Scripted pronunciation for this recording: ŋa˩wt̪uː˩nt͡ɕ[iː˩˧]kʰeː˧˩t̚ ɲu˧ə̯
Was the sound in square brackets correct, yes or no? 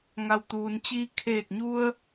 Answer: no